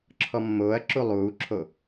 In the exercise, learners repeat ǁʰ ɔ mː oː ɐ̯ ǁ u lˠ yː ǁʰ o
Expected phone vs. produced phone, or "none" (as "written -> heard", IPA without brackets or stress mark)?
yː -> uː